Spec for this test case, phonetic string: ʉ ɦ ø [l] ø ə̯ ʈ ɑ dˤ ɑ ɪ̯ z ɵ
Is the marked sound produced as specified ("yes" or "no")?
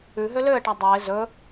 yes